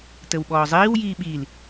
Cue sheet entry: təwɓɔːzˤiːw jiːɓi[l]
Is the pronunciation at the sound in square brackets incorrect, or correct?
correct